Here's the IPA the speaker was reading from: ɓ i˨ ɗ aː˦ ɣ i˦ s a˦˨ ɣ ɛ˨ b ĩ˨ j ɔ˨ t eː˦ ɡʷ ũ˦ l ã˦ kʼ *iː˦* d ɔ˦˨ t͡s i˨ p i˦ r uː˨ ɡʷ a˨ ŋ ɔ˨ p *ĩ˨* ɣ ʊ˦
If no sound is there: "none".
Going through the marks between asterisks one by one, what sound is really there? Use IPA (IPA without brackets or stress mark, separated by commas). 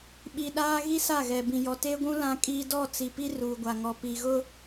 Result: iː˦, i˨